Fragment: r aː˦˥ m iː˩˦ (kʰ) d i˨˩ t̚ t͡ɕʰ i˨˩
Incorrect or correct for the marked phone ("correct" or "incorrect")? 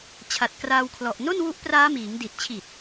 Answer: incorrect